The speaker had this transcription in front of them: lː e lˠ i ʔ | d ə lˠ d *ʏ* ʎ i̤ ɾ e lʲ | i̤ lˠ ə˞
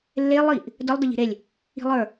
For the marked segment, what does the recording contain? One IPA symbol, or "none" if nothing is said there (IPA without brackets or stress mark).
ə